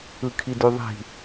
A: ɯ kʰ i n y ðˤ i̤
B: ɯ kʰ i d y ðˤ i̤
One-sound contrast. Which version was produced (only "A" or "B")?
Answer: B